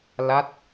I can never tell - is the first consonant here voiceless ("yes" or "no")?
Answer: no